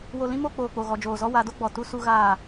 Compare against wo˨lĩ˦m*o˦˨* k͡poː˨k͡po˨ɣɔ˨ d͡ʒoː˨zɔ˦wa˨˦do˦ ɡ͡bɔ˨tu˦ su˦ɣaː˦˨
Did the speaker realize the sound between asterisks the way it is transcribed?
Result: yes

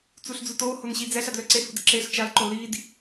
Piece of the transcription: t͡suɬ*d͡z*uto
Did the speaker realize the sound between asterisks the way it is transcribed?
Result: yes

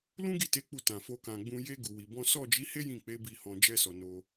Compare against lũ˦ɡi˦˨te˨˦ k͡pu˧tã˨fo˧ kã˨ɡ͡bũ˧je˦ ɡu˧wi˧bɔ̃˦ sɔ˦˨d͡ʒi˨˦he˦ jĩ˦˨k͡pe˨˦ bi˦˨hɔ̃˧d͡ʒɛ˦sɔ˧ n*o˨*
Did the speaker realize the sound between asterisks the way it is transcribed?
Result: no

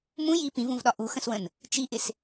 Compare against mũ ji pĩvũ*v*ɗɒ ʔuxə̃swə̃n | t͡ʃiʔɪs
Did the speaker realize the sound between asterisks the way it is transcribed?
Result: yes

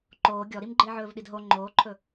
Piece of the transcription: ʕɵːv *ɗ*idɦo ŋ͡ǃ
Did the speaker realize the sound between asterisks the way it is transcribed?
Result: yes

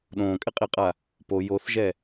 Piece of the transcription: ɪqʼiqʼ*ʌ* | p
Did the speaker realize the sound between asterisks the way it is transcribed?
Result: no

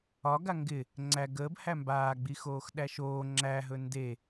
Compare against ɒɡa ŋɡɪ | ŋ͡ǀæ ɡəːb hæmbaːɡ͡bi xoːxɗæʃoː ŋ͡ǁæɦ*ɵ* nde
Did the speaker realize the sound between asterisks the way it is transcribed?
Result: yes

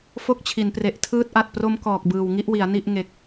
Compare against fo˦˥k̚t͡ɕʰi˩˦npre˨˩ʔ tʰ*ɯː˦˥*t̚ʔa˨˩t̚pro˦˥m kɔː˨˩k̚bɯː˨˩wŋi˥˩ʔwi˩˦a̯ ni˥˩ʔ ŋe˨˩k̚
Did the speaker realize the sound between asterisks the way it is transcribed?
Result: yes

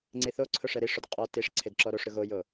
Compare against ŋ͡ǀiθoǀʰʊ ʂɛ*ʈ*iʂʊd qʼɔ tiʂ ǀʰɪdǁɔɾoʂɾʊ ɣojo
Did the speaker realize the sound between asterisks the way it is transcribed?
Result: no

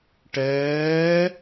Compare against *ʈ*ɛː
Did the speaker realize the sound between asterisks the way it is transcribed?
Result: yes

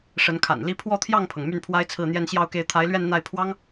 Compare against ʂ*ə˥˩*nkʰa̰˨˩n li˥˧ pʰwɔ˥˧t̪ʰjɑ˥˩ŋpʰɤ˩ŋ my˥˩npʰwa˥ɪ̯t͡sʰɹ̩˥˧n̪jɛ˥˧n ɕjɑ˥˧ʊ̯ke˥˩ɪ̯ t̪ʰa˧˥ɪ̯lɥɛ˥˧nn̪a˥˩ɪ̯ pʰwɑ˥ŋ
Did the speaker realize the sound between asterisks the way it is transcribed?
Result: no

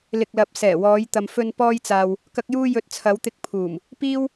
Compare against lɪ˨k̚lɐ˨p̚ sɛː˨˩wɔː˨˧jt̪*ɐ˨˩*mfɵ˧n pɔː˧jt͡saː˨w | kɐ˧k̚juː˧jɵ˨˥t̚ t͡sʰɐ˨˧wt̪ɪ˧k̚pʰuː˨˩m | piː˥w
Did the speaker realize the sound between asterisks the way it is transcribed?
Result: no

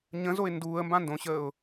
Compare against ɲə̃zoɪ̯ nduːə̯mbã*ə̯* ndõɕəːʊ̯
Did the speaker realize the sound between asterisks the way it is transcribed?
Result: no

